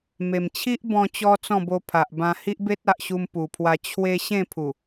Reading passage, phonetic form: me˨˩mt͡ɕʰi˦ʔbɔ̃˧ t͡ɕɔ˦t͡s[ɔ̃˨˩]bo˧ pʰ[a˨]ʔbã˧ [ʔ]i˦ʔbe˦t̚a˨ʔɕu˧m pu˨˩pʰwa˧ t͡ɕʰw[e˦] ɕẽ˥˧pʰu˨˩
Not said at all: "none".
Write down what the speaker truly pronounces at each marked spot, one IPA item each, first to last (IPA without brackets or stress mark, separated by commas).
ɔ̃˥˧, a˨, h, e˧